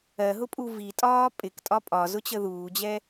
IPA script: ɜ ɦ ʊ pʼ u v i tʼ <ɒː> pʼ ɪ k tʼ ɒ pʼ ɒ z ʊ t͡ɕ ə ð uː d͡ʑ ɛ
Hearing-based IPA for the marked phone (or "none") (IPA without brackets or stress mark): ɒː